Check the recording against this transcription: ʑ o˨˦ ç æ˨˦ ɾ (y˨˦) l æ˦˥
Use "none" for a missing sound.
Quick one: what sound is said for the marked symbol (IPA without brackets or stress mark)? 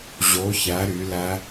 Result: y˨˦